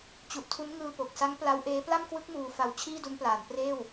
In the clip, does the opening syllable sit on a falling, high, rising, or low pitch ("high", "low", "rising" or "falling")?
low